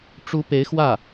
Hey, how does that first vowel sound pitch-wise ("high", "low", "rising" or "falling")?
rising